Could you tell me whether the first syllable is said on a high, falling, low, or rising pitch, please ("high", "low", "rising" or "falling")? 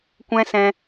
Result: high